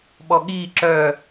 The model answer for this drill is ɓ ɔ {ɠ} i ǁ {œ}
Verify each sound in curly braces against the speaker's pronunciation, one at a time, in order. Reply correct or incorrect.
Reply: correct, correct

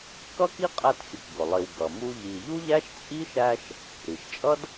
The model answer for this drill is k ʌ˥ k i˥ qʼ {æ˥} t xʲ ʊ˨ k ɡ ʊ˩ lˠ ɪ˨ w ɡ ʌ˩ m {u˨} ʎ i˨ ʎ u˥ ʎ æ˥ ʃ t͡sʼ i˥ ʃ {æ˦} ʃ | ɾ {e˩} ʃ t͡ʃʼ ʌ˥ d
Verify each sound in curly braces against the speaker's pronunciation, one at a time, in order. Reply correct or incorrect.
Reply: incorrect: æ˦, incorrect: u˦, correct, incorrect: i˩

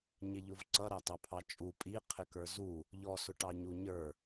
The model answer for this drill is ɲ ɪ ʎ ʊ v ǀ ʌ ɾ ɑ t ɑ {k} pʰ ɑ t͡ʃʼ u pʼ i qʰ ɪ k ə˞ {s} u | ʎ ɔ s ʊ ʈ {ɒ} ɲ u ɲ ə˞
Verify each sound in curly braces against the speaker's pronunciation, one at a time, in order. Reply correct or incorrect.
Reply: incorrect: none, incorrect: z, incorrect: ɑ

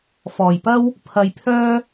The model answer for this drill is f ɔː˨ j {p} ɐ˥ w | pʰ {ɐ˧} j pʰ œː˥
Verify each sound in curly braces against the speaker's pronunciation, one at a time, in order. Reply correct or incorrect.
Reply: correct, correct

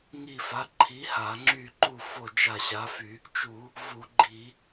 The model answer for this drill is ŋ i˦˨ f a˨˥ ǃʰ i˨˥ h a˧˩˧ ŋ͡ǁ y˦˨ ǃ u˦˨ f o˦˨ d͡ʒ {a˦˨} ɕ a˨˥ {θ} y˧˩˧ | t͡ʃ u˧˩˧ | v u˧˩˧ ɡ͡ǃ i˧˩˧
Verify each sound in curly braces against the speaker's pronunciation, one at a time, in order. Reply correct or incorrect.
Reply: correct, incorrect: f

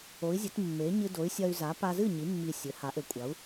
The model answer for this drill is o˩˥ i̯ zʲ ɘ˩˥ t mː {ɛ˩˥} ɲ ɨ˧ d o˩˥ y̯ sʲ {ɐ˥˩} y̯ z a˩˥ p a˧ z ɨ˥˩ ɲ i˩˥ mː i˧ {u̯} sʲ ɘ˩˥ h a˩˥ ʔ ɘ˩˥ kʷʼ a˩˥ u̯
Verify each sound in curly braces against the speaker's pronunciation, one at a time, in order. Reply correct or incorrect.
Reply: incorrect: e˩˥, incorrect: ɐ˧, incorrect: none

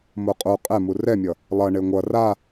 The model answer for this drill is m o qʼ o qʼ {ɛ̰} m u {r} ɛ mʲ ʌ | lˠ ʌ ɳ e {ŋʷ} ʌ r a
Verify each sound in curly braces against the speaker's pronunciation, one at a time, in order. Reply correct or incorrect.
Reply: incorrect: ɛ, correct, correct

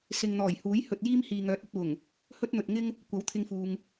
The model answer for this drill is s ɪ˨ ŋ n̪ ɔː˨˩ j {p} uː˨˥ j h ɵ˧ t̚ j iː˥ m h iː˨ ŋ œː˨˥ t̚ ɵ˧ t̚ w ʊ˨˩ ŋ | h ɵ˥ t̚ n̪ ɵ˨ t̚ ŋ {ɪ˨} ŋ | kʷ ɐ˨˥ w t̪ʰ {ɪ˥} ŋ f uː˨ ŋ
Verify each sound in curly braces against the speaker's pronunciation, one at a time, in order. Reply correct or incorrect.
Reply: incorrect: h, incorrect: ɪ˥, incorrect: ɪ˧

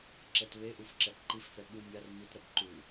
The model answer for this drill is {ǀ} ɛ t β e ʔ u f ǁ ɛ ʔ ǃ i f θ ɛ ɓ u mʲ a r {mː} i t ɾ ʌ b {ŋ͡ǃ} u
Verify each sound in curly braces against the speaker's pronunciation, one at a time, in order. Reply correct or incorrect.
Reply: incorrect: ǁ, incorrect: m, incorrect: ǃ

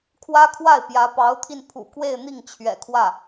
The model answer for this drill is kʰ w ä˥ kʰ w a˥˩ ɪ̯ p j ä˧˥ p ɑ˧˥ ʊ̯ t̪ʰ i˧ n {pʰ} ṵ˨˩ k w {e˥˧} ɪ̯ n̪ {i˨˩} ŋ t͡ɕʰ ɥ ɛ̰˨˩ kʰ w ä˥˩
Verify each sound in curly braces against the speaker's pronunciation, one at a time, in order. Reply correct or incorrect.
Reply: correct, correct, incorrect: i˥˩

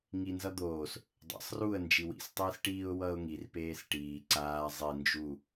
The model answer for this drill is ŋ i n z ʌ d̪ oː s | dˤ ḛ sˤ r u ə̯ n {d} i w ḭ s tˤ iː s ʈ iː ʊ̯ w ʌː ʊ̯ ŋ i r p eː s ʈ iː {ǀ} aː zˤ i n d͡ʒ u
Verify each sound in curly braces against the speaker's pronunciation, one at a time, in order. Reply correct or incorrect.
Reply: incorrect: d͡ʒ, correct

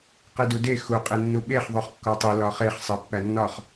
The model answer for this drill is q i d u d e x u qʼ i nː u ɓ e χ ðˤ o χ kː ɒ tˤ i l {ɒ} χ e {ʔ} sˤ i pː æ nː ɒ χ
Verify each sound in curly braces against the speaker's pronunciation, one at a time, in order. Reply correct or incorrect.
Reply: correct, incorrect: χ

